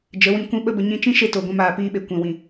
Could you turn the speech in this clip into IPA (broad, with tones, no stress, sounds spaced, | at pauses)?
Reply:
d͡ʒ ə˨˦ w ĩ˧ kʷ ĩ˦ ɓ ə˦ b ə˨ ɲ ĩ˧ t͡ʃ ĩ˦ ʃ e˧ t o˨ ɡʷ ɛ̃˧ m aː˨ p iː˧ ɓ e˨ kʷ ɛ̃˨ w ĩ˨